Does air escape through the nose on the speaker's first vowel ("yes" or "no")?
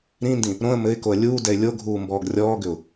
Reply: yes